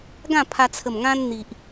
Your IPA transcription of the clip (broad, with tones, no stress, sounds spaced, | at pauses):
ɡ ã˥˧ pʰ a˧ t͡sʰ ə˨˩ m ŋ ã˧ n n̪ i˨ ʔ